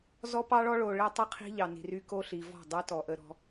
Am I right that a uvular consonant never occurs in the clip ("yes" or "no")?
no